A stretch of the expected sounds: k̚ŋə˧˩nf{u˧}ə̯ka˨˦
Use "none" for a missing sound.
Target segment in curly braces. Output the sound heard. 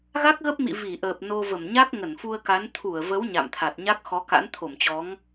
u˧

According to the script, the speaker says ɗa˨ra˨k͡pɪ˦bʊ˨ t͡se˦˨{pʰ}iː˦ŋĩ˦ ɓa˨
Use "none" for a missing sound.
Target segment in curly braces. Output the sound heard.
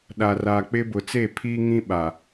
pʰ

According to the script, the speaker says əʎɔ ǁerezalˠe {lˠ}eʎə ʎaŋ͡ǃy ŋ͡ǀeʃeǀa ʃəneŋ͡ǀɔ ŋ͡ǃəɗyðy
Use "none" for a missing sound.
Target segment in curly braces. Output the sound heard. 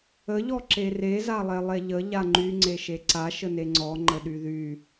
lˠ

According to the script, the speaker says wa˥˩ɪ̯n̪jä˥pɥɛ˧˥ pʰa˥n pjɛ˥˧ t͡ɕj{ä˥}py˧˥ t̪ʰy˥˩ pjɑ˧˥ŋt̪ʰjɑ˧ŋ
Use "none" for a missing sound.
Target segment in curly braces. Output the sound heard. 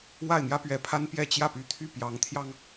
ä˥˩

